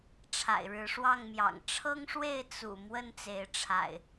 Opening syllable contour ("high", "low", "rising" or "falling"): low